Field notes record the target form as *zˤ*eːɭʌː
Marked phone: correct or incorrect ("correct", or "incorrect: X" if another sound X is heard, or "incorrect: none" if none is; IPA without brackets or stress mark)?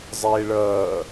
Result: correct